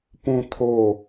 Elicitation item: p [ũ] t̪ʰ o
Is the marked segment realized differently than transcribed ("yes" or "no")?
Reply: no